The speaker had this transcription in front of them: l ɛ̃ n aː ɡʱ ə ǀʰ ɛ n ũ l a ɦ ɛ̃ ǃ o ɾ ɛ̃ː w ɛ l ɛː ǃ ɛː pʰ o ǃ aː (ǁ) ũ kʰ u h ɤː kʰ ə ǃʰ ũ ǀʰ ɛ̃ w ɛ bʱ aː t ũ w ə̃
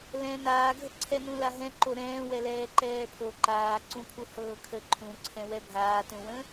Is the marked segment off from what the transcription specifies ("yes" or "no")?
yes